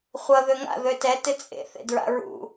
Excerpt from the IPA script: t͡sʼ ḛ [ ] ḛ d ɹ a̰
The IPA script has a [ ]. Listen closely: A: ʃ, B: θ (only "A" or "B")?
B